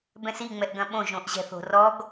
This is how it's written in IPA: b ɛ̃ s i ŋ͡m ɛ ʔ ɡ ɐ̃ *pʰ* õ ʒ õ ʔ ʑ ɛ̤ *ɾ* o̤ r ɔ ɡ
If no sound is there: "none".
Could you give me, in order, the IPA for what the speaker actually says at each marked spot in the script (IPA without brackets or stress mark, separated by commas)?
ɓ, θ